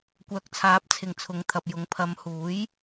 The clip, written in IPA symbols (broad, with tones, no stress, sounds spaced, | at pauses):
kʷ œː˨˥ k̚ t͡sʰ aː˨˥ p̚ t͡sʰ ɪ˨˩ ŋ t͡sʰ ʊ˨ ŋ t̪ʰ ɐ˨ p̚ j ʊ˨ ŋ pʰ ɐ˨˧ m h uː˨˥ j